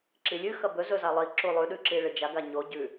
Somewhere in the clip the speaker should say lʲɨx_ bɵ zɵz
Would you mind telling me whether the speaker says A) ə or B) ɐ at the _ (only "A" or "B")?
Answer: B